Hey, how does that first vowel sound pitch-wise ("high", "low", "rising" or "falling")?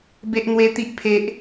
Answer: high